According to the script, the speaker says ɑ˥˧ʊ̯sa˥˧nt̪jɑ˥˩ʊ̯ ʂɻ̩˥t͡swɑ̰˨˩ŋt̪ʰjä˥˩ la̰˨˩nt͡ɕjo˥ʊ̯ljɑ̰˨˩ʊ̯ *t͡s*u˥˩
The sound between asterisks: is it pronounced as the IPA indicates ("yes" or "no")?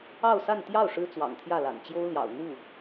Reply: no